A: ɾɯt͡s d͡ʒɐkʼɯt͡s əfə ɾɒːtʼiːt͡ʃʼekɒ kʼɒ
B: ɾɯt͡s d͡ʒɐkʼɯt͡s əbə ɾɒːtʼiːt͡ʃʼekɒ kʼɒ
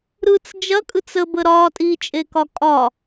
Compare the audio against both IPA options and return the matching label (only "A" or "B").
B